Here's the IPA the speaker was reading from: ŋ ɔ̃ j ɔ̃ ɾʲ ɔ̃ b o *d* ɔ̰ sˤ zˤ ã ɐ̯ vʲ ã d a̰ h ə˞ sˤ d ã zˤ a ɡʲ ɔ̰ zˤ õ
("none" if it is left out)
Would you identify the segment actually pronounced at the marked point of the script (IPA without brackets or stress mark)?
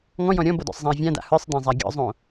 d